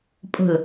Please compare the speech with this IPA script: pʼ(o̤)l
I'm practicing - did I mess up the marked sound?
no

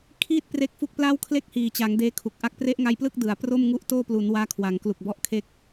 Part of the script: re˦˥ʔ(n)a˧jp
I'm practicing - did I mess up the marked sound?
yes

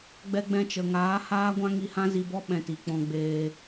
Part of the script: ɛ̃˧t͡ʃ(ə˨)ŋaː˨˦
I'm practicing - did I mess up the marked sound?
no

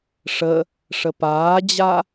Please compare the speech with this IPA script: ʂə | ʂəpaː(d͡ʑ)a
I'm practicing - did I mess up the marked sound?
no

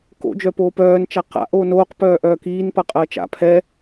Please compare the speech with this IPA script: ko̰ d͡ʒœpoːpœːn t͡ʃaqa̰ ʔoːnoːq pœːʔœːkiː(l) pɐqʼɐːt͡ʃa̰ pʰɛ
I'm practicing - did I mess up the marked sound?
yes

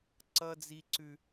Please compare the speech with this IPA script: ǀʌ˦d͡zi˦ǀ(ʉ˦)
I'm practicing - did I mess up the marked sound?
no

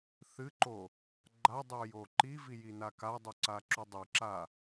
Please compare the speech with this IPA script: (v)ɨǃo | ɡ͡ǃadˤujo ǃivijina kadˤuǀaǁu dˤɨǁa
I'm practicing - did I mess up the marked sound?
yes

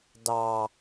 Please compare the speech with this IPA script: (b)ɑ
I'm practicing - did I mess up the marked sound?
yes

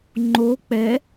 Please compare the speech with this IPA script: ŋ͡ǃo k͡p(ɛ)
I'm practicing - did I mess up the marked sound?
no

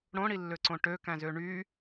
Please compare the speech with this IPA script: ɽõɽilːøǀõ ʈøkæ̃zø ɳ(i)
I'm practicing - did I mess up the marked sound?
yes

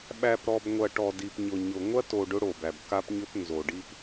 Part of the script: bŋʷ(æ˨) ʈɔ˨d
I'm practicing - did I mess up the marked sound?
yes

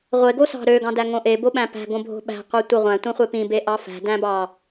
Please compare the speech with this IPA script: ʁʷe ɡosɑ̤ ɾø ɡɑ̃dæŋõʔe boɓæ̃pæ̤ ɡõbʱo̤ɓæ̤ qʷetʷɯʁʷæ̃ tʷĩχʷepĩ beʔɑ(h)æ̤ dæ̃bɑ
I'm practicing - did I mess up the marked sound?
yes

